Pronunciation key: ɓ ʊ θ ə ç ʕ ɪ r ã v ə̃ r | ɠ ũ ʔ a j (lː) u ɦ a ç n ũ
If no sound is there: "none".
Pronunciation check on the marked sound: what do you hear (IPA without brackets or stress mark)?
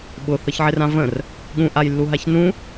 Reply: lː